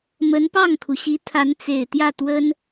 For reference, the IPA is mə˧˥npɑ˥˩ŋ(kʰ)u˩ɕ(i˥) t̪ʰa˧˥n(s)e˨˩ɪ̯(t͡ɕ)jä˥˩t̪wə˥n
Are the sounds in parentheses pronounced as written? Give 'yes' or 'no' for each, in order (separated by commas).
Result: yes, no, no, no